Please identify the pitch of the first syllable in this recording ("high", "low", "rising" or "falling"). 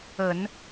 low